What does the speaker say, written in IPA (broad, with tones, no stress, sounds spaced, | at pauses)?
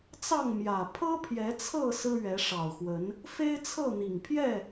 t͡s ɑ˥˨ ŋ m j ä˨˩ pʰ ɤ˦ pʰ j ɛ˨˦ t͡sʰ ɤ˥˨ s ɹ̩˦ ɥ ɛ˨˦ ʂ ɑ˨˩ ʊ̯ x w ə˨˦ n | f e˦ ɪ̯ t͡sʰ ɤ˥˨ n̪ i˨˩ ŋ pʰ j ɛ˥˨